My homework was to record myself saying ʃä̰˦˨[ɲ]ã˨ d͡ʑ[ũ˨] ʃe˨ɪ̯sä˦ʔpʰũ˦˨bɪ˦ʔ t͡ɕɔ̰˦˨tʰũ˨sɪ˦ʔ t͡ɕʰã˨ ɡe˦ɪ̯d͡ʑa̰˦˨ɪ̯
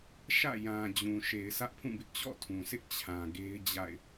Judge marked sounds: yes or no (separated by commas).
no, yes